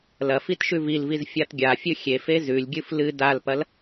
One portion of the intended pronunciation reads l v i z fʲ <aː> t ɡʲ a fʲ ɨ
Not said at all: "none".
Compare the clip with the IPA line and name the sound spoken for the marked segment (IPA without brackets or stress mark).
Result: a